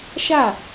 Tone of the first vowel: falling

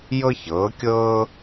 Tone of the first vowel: high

